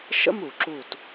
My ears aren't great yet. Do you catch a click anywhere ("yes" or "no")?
yes